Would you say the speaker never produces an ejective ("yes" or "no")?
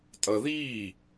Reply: no